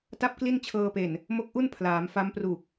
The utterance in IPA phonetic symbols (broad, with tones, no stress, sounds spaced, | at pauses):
t a˥˩ p̚ k l i˥˩ n t͡ɕʰ ɤː˧ p e˨˩ n | m o˦˥ k̚ ʔ u˥˩ n pʰ l aː˩˦ m f a˦˥ m p r u˨˩ k̚